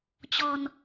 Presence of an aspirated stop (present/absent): absent